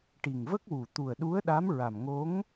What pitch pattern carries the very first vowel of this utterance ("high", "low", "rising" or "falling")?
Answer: low